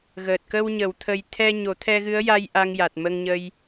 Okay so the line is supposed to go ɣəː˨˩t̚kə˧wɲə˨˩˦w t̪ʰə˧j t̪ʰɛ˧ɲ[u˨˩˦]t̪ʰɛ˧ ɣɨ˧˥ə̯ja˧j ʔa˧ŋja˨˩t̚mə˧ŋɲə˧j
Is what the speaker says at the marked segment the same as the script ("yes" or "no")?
no